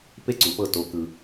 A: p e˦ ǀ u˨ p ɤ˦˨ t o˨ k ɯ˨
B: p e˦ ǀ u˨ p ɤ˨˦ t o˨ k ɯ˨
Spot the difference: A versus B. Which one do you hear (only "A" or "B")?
A